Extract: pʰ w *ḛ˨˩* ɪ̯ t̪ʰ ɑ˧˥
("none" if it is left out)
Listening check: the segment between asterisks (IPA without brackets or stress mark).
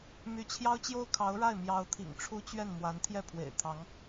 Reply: ḛ˨˩